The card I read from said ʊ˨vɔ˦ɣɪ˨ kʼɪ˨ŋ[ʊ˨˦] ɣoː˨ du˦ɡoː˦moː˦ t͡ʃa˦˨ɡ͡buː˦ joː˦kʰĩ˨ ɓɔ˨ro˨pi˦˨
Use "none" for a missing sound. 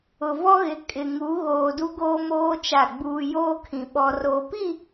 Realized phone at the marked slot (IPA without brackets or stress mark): u˨˦